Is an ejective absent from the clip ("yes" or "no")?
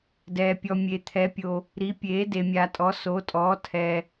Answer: no